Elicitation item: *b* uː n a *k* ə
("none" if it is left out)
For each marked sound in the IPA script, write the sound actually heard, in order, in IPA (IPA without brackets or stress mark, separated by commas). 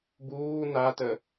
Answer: b, t